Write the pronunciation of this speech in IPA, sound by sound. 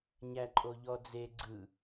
ɲ æ ǃʼ o ʎ ɔ d͡z e ɡ͡ǀ ɯ

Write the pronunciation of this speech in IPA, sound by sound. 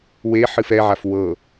w e ħ ɨ f ɛ ʕ a f w ɤ

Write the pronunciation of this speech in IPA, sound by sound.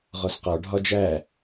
ʁ ɔ s q ɒ ɖʱ ɒ d͡ʒ æ

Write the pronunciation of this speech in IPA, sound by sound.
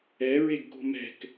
ɛ ɹ e ɡ k o̤ m ɛ̤ k

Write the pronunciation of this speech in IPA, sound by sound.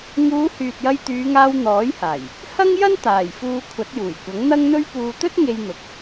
ŋ uː˨˧ h yː˨ t̚ j ɐ˧ j t̪ yː˨˧ ŋ aː˧ w n̪ ɔː˨˥ j h aː˨˩ j | h ɐ˥ ŋ j ɐ˥ n t̪ aː˨˩ j f uː˧ kʷʰ ɐ˨˥ t̚ j uː˨˩ j kʷ ɐ˨˥ ŋ n̪ ɐ˥ ŋ n̪ ɵ˥ ɥ p uː˧ t̪ ɵ˥ t̚ ŋ e˧ j n̪ ʊ˨ k̚

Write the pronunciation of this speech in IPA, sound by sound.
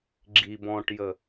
ɡ͡ǁ i b ɔ̃ ʈ j ə

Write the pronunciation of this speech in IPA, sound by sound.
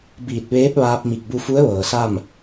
b iː˧˩ t̚ ʋ eː˧˥ p̚ ʋ aː˧ p̚ m i˧˩ k̚ b u˧ f u˧˥ ə̯ ʋ ɤː˩ s a˥˨ m

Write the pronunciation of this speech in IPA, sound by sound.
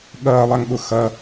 ɠ ɐː lˠ a ŋ ɠ ʊ x ɐ

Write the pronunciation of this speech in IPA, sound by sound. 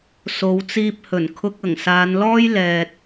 s o˨˧ w t͡s iː˧ p̚ h ɵ˨˩ n kʰ ʊ˧ k̚ ɐ˨˩ ŋ s aː˨˧ n l ɔː˥ j l ɛː˨ t̚

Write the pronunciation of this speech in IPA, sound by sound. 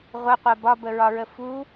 ʁʷ ʌ qʷ ɜ b ɒ b ə ɹ ɒ ɹ ə f u

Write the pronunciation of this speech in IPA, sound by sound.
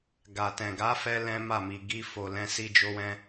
ɡ a˨ t ɛ̃˨ ɡ a˨˦ f ɛ˧ l ɛ̃˦ m a˦˨ m i˨ ɡ i˧ f o˨ l ɛ̃˧ s i˧ d͡ʒ o˧ w ɛ̃˧

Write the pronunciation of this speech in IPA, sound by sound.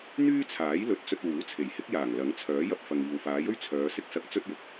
n̪ yː˥ t͡sʰ aː˨˥ j l ɵ˨˥ t̚ t͡s ɵ˧ t̚ w uː˨˥ t͡sʰ e˨˩ j h ɪ˥ k̚ j aː˨˩ ŋ l ɐ˨˥ ŋ t͡sʰ œː˨˥ j ɐ˧ p̚ f ɐ˨ ŋ iː˨ w f aː˨˧ j ɵ˥ ɥ t͡sʰ œː˨˧ s ɪ˧ k̚ s ɐ˨˥ k̚ t͡s ɵ˧ t̚ j ʊ˨ k̚

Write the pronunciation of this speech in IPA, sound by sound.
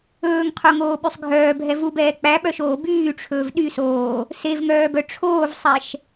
ɵː ŋ qʰ o ŋ oː ɓ y sˤ ɡʱ œː bʱ ɛ v u b ɛː k͡p æ ɓ œ ʃ oː b yː ʈ͡ʂʰ ɵː v ɗ y s oː | s e v ŋ œː b œ ʈ͡ʂʰ oː v sˤ ɛ ʃ

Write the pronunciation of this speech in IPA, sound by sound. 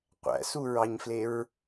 qʷ æ̰ s u ɹ ɑ ɲ f l e ɹ

